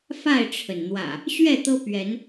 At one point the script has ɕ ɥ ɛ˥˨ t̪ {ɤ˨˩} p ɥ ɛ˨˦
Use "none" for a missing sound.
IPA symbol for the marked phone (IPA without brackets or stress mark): ɤ˦